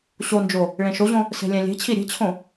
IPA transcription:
ɕ o n d͡ʒ o | ɭ ẽ ʃ o ʑ õ | s e̤ lʲ ɛ̃ lʲ e̤ t͡ɕʰ i ɾʲ e̤ t͡ɕʰ õ

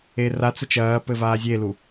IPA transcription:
e r a t͡s ɘ t͡ʃ ɐː p ɘ v aː zʲ e l u

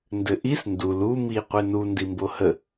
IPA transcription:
n d ɘ ʔ i s n d u l u m i qʷ e n u n d i m b o h ə

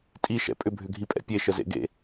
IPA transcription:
tʼ i ʃ ɛ̰ pʼ ʏ bʱ ʏ ɡʱ i pʼ ɛ̰ pʲ e ʃ ə z ḛ ɡ ḛ

